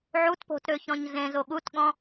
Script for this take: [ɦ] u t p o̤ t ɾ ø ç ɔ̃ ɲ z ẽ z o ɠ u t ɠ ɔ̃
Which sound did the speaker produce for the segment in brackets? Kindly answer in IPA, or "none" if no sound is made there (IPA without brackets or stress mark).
ʕ